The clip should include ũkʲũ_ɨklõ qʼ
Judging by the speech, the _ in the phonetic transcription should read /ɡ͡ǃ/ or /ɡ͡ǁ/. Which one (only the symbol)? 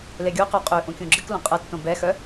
ɡ͡ǁ